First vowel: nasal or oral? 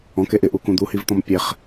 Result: nasal